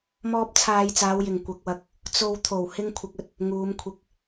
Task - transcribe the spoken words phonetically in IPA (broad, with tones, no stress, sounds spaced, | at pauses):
m ɔː˧ p̚ t͡sʰ aː˨ j t͡s aː˨˧ w j ɪ˨˩ ŋ kʷ ɐ˨ k̚ w ɐ˧ k̚ | t͡s o˨ w t̪ʰ o˨˩ w h ɪ˥ ŋ kʷʰ ɐ˧ k̚ ɵ˧ t̚ | ŋ uː˨˧ m kʷʰ ɪ˧ k̚